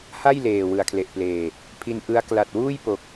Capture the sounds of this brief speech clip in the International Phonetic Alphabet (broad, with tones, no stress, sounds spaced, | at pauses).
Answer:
h a˥˩ j l eː˨˩ w ɯ˨˩ a̯ kʰ l e˨˩ ʔ p l eː˨˩ | pʰ i˧ n ʔ ɯ˦˥ a̯ k l a˨˩ t̚ w uː˥˩ j p o˨˩ k̚